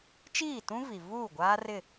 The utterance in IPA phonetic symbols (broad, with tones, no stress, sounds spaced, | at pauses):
t͡ʃ iː˦˨ t ũ˦ v i˨ v uː˦˨ ɡʷ aː˦ r ɪ˦˨